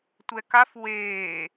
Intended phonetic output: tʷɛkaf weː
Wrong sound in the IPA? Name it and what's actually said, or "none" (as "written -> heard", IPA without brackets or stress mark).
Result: none